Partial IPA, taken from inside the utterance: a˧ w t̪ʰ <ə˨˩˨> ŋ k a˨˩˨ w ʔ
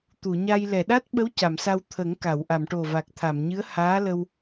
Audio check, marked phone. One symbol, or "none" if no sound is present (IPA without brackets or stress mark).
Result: ə˨˩˦